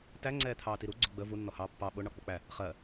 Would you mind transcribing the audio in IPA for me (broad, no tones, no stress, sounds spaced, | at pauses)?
t æ ŋ͡ǀ ɛː t̪ʰ ɑː t i ɾ u ɡ͡ǀ ʊ ɡ͡b ə v u nː ɔ h ɑː pː ɑ ɓ ʊ ɳ ɒ k͡p ʊ k͡p æ | χ ɜ